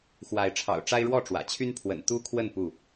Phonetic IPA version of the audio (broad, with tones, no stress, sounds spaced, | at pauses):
x w a˨˦ ɪ̯ ʈ͡ʂʰ ɑ̰˨˩ ʊ̯ ʈ͡ʂ a˦ ɪ̯ ɻ w ɔ˥˨ ʈ͡ʂ w ä̰˨˩ t͡ɕʰ y˦ n pʰ w ə̰˨˩ n t̪ u˦ kʰ w ə˥˨ n p u˥˨